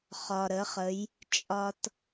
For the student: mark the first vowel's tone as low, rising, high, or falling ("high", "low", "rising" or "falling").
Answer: low